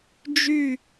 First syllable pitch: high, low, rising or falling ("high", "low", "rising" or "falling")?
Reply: falling